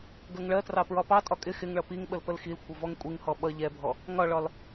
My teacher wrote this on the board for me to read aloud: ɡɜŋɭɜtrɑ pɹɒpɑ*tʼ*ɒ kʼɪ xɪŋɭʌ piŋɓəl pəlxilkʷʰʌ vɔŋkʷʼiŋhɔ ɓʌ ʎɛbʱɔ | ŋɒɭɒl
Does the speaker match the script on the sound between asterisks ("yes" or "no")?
yes